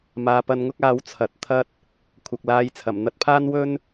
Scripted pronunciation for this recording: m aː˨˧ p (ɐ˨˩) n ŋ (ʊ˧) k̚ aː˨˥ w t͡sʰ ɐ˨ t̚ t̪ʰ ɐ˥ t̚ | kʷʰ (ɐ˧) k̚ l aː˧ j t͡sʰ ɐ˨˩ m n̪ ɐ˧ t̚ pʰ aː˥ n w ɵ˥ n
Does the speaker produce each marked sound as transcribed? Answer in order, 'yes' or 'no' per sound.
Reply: no, no, no

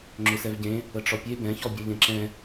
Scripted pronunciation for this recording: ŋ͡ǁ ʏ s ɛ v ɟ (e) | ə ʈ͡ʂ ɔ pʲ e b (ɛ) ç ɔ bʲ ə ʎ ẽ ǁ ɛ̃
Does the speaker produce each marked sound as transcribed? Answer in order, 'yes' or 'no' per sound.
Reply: no, no

